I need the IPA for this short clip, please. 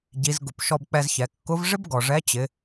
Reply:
ɟ i˩˧ z ɡ ʊ˩ p ʃ ɔ˧ b k͡p ɛ˧ z ç ɛ˩˧ kː ʊ˧˥ v ʐ ɪ˥ b ɡ ɔ˩ ʐ ɛ˧˥ t͡ɕ ɪ˩˧

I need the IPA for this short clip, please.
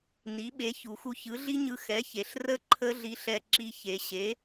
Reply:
n i˩˥ ɓ e˩˥ ç u˩˧ x u˧ ç ɯ˩˥ ɮ i˦˥ ɲ ɯ˧ x ɛ˩˥ ç e˩˧ ɬ r ə˦˥ ǃʰ ə˦˥ ɮ i˧ ɬ ɛ˧ ǁ i˧ ç e˩˧ ɕ e˩˥

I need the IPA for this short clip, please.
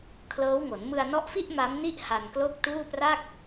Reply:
kʰ l ɤː˦˥ w ŋ o˩˦ n m ɯ˧ a̯ n ɔ˦˥ ʔ f i˥˩ ʔ m a˦˥ m n i˥˩ ʔ h a˧ n k l o˥˩ k̚ t uː˥˩ p r a˥˩ k̚

